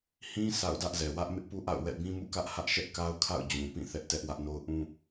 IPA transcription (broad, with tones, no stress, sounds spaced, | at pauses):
h ĩ˦ s a̰˦˨ ʊ̯ d ä˦ ʔ z ɛ˨ w ä˦ ʔ m ɪ˦ ʔ p u˦ ʔ a̰˦˨ ʊ̯ w ɛ̰˦˨ b ĩ˦ m ṵ˦˨ k ä˦ ʔ h ä˦ ʔ ʃ ɛ˦ ʔ k a˦ ʊ̯ kʰ a̰˦˨ ʊ̯ d͡ʑ ũ˨ p ĩ˦˨ θ ɛ˦ ʔ t ɛ˦ ʔ w ä˦ ʔ n o˦ ʊ̯ ʔ ũ˦